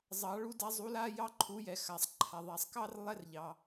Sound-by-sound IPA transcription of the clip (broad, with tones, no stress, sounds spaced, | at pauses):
zˤ ɑ˧˥ ɭ u˥ d a˥ zˤ u˧˥ l a˥ j ɑ˥ ǃʰ u˧˥ j ɛ˨ x a˨ sˤ ǃʰ a˨ ðˤ a˨ sˤ k ɑ˥ r lˠ ɛ˥ r ʎ ɑ˨